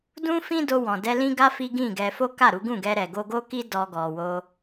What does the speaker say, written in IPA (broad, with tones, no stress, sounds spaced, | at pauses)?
d ũ˦ f ĩ˦ d o˧ w ɔ̃˨ d ɛ˧ l ĩ˦ ɡ a˦ f i˦ ɡ ĩ˦˨ ɡ ɛ˧ f o˦ k a˦˨ ɾ u˨˦ ɡ ũ˦˨ ɡ ɛ˧ ɾ ɛ˨ ɡ o˧ ɡ o˦ k i˦ d ɔ˧ ɡ ɔ˨ w o˧